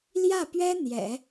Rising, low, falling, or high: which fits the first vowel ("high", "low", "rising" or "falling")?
falling